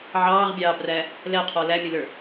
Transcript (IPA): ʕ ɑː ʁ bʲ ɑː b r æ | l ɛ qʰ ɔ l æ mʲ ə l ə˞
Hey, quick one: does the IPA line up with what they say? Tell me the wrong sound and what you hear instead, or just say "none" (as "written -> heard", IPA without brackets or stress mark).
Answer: none